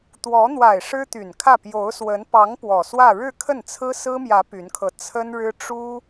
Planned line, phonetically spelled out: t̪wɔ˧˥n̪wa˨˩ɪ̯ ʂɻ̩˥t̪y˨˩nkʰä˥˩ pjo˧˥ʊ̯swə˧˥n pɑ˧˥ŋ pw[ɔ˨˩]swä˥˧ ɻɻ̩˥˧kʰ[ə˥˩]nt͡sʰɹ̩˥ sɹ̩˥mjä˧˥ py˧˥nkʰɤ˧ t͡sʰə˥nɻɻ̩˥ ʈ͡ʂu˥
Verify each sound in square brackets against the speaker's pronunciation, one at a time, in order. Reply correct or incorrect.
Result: correct, correct

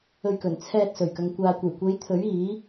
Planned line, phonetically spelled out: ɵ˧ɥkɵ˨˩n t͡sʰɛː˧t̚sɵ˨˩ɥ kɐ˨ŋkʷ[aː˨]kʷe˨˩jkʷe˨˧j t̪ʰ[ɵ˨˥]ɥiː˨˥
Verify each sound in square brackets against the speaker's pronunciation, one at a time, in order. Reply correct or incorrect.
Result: correct, correct

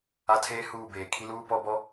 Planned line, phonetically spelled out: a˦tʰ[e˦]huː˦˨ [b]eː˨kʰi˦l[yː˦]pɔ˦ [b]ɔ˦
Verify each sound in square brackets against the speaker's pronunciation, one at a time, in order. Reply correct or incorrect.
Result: incorrect, correct, incorrect, correct

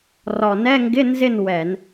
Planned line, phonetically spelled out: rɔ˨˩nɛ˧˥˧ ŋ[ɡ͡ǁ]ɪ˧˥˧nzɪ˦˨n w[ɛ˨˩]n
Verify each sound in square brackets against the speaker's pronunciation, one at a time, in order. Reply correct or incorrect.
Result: incorrect, incorrect

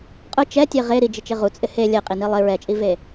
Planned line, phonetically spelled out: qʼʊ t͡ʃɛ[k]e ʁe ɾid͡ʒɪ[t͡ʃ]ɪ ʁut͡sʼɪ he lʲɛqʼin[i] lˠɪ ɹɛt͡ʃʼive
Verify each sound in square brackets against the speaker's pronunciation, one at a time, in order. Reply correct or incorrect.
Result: incorrect, correct, correct

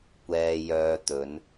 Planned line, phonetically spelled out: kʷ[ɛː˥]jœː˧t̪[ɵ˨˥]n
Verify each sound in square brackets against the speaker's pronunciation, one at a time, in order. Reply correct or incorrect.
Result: incorrect, correct

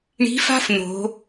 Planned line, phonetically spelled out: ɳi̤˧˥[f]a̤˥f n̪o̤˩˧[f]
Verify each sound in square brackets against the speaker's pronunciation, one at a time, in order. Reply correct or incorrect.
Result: correct, incorrect

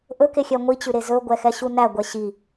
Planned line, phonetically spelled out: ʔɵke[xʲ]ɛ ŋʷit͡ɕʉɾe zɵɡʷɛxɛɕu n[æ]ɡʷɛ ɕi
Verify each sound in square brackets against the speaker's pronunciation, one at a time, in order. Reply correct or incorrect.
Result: correct, correct

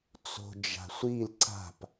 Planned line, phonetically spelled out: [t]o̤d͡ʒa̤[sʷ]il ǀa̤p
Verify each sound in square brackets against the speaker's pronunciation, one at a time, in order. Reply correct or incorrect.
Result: incorrect, correct

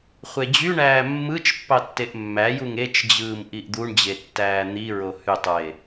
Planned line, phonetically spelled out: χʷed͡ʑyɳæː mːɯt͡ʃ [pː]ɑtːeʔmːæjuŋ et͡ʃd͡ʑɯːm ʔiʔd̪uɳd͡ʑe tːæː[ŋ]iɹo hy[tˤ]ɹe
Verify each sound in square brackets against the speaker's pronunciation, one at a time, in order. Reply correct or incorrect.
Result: correct, incorrect, correct

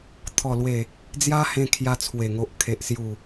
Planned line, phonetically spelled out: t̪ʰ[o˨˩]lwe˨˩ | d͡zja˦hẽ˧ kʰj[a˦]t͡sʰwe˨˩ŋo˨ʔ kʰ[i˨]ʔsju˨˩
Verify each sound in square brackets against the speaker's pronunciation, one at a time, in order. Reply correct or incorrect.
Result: incorrect, incorrect, incorrect

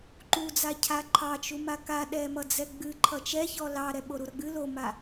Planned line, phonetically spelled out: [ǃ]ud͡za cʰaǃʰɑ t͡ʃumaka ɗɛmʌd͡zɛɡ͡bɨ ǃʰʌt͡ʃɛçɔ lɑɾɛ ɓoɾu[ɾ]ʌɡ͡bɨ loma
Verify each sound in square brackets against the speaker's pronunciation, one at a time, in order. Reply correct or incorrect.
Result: correct, correct

